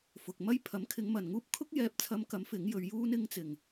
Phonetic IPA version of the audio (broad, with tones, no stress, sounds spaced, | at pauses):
f ʊ˨ k̚ m ɐ˥ j pʰ ɐ˨˥ m kʰ ɪ˨˧ ŋ m ɐ˨ n ŋ uː˥ p̚ kʰ ʊ˥ k̚ j ɛː˧ p̚ t͡sʰ ɐ˧ m k ɐ˨˥ m f ɪ˨˥ ŋ j ɵ˨˧ ɥ j uː˥ n ɪ˧ ŋ t͡s ɪ˨ ŋ